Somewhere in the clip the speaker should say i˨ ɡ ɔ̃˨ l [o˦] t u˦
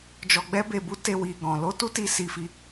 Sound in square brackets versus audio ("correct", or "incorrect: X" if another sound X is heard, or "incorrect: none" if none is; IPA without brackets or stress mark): incorrect: o˧